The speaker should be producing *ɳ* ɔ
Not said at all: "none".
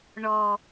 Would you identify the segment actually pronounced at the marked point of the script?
ɳ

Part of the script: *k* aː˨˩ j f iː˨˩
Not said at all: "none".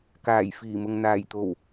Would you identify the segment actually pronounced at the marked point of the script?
k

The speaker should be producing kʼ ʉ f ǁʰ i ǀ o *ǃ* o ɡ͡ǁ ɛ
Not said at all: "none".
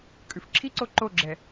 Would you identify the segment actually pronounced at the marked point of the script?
ǃ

